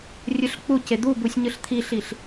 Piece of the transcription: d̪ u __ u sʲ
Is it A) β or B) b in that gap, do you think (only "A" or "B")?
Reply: B